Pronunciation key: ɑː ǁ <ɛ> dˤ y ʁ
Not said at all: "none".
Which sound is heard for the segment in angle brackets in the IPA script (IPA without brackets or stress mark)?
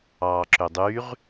ø